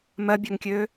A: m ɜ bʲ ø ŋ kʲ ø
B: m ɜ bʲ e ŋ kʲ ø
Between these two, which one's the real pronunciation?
A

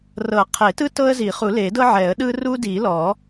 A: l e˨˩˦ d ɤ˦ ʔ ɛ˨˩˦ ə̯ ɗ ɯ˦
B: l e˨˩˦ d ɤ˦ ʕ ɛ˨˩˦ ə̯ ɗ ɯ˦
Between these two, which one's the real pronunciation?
B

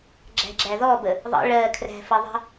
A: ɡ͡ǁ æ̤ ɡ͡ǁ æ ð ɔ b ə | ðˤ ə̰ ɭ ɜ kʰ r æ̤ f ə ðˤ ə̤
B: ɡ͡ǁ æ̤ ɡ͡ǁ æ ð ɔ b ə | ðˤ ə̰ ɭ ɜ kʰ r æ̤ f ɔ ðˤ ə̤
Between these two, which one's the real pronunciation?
A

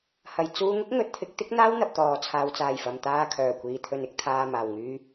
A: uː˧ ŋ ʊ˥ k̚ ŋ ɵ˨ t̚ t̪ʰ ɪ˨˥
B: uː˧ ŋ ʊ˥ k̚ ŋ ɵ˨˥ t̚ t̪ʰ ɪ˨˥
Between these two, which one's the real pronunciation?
B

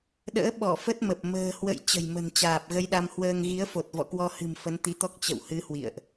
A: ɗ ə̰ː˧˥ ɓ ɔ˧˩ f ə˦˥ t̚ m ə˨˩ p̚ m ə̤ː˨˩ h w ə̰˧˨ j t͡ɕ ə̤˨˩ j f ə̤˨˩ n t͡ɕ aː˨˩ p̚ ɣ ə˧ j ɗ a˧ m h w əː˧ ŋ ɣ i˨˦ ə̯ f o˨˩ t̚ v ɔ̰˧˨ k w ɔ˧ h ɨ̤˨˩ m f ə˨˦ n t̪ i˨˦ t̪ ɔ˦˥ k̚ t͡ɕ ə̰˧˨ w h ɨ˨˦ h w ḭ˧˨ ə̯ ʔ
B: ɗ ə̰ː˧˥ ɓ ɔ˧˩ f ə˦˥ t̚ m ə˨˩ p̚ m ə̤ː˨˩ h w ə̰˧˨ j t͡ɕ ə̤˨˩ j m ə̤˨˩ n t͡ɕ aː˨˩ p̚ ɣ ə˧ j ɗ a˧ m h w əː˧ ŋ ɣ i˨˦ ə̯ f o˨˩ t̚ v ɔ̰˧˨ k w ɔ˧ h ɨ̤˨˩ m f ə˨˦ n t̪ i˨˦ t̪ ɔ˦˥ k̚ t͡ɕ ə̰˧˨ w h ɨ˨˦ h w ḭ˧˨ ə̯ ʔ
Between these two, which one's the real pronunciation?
B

